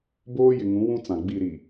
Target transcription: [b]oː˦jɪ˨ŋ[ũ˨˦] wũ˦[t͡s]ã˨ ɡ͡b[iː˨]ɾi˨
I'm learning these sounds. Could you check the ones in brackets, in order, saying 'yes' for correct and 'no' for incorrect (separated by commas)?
yes, yes, yes, no